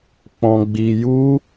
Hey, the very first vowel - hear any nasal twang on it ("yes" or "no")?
yes